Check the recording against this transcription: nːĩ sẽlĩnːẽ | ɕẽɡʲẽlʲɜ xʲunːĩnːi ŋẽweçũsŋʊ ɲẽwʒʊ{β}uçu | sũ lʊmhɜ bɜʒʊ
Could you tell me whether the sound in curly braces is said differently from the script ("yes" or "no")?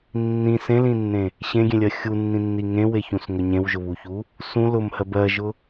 no